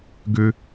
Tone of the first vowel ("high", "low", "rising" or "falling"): low